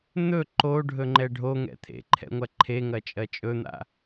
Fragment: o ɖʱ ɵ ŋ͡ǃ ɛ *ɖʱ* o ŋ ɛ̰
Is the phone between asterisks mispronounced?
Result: no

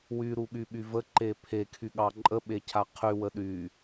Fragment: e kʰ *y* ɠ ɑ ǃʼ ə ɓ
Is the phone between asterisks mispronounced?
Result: no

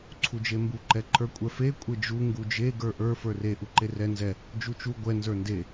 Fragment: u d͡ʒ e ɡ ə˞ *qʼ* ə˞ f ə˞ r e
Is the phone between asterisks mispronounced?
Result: yes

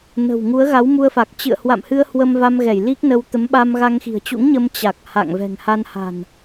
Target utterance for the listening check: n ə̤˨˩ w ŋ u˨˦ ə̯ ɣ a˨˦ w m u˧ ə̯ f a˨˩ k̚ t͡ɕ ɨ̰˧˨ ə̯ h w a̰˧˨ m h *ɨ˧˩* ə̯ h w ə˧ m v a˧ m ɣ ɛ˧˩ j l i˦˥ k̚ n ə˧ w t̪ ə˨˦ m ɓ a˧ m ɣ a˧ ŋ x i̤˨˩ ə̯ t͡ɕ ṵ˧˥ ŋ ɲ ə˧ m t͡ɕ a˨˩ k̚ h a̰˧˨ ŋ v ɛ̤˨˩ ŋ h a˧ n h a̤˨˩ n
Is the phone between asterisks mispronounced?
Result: yes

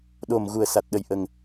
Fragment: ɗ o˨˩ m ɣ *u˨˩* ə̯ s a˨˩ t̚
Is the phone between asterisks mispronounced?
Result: no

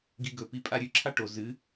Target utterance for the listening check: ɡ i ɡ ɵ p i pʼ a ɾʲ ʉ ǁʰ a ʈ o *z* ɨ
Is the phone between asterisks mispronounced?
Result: no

